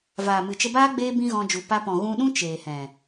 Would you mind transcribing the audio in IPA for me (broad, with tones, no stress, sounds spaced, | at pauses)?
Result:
v aː˨ m ɨ˨ t͡ʃ ə˧ b aː˦ ɡ͡b eː˦ b ĩ˦ ɣ ɔ̃˧ d͡ʒ u˨ p a˧ p ɔ̃˨ ɣ ũ˧ ɗ ũ˦ t͡ʃ eː˨ h ɛ̃˨